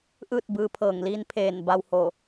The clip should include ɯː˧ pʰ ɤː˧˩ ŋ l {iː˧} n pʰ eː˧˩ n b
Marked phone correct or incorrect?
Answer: correct